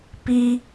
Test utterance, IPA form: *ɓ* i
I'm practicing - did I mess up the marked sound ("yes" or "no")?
yes